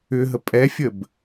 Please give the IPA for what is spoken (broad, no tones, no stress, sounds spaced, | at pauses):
ʏ ɦ ə pʼ ɛ fʲ ə b